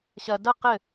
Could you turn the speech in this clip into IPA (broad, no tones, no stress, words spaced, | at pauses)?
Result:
ɕɐ dɐ qɘ